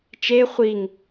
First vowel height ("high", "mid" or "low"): mid